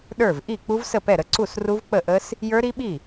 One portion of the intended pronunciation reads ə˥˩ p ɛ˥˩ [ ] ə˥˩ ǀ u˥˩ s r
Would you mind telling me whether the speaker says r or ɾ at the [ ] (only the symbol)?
ɾ